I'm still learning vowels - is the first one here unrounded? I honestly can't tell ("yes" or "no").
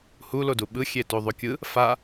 no